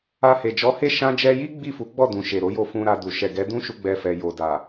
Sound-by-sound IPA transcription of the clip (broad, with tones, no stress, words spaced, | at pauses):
a˧he˨ d͡ʒɔ˨˦he˦˨ ʃã˧d͡ʒɛ˧ji˦ ɡ͡bi˦˨fu˨˦ɡ͡bɔ˦˨dũ˨ ʃe˨ɾo˨˦jo˦˨fũ˧ ɾa˧du˨ ʃɛ˨ɡɛ˨˦dũ˦ʃu˧ ɡ͡bɛ˧fɛ˨jo˨ da˨